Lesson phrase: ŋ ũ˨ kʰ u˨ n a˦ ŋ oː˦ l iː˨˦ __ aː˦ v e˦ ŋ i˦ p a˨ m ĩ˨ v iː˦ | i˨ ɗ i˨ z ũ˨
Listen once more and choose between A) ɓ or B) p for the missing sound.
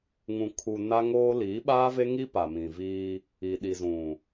A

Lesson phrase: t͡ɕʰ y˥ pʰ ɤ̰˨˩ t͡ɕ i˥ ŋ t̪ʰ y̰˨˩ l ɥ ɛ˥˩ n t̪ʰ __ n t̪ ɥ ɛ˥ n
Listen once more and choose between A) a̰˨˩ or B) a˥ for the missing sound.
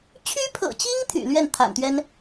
A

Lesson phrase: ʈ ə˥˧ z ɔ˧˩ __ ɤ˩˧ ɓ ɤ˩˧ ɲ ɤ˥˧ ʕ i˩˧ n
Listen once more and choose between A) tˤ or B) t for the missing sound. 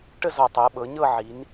A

